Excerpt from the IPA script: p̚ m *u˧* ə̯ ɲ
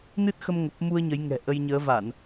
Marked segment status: correct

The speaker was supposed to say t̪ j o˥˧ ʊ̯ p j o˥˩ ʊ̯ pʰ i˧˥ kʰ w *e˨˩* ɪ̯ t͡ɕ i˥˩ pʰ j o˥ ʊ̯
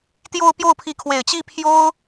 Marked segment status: correct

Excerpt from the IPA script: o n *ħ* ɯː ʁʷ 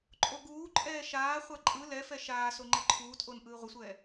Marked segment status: incorrect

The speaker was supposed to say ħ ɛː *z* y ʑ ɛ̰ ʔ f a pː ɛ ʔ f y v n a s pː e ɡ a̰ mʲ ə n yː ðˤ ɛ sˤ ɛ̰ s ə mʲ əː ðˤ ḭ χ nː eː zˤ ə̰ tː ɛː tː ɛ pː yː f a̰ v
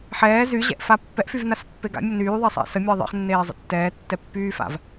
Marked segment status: correct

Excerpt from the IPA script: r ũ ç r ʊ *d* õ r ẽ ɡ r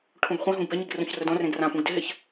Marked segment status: correct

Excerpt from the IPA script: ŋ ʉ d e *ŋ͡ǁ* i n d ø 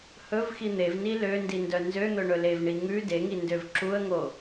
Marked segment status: incorrect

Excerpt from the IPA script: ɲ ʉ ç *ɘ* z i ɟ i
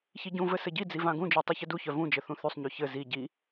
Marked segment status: correct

